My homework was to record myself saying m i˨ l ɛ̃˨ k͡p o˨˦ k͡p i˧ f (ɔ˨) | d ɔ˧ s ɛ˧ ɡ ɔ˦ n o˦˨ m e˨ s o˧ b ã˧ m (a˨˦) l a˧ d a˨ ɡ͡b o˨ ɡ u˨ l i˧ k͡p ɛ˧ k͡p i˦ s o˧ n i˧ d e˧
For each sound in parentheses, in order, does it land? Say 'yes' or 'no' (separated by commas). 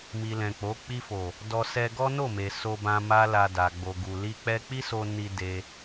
no, no